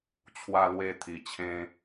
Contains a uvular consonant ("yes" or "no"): no